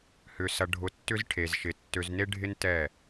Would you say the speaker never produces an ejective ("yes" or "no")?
yes